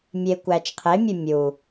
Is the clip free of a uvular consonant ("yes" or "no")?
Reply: no